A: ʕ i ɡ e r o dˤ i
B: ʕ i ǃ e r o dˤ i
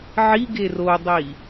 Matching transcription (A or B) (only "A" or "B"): A